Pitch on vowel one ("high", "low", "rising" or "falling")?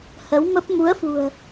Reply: rising